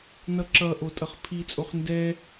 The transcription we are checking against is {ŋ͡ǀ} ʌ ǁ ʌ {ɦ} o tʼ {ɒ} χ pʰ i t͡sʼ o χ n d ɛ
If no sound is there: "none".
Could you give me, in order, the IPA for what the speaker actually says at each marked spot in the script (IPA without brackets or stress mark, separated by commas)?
n, ʔ, ʌ